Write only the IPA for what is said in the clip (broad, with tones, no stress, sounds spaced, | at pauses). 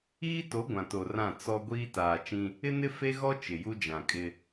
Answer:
iː˦ t o˨˦ ɡʷ ã˨ t o˨ r ã˦˨ t͡s ɔ˦ ɡʷ iː˦ t aː˨ t͡ʃ ĩ˦ | ɪ˦ n ɪ˦ f e˦ ɣ ɔ˦ t͡ʃ ɪ˨ j u˦ d͡ʒ ã˨ kʼ ɪ˦